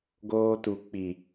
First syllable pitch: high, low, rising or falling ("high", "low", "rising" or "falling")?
high